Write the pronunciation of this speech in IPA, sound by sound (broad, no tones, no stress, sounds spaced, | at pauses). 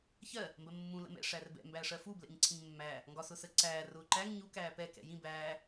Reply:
ç ɜ | m b ɜ mː ũ l ə̰ m ɛ̰ ʂ æ r b ɛ̰ m b æ ʂ ɜ f u b l ɛ̰ ɲ ǀʰ ĩ ɲ mː æ | ŋ ɡ ɒ s ʊ s ə ǀ æː r ʊː ǃ æ ŋ ɲ u k æː p ɛ k ɛ̰ j ĩ b æː